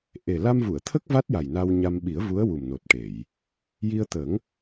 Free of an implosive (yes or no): no